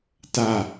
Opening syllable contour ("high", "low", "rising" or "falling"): falling